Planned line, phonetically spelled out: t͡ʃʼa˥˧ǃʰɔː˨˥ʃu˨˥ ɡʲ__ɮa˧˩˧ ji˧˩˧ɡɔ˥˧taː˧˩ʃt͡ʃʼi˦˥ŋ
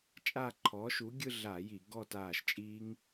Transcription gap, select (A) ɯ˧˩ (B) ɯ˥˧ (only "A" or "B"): B